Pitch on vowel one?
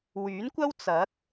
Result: rising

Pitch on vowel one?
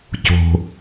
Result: low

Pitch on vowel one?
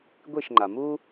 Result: falling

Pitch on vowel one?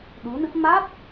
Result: rising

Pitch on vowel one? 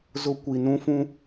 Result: high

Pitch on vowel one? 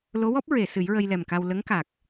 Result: rising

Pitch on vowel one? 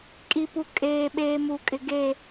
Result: low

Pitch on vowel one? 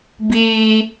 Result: high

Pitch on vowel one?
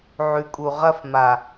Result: low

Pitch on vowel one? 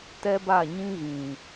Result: high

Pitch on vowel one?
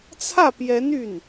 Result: falling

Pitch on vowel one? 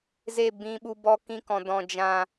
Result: falling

